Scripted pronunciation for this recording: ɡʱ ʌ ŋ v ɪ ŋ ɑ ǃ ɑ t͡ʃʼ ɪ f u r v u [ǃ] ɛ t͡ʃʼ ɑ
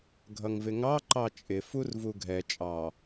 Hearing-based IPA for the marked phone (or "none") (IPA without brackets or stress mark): ɡʱ